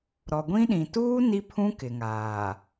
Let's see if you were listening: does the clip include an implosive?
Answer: yes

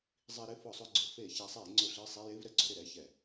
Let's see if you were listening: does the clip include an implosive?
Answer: no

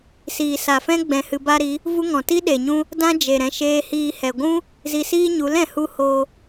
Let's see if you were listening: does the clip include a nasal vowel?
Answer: yes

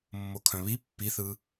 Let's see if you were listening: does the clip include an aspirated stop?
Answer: yes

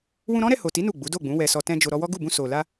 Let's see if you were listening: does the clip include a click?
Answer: no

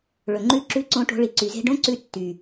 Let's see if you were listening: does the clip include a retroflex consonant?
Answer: yes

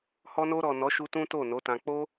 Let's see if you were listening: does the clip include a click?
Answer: no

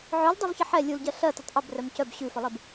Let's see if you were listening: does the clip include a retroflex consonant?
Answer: no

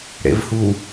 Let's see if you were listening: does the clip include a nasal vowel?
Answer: no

